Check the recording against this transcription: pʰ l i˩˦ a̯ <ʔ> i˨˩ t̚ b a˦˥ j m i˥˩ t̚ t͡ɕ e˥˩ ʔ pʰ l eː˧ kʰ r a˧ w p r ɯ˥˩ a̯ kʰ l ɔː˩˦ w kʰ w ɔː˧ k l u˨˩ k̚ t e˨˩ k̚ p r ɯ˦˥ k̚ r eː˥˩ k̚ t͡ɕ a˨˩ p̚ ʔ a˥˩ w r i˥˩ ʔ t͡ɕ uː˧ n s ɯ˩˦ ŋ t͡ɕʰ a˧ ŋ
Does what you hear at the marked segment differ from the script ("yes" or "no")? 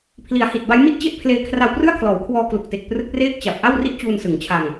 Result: yes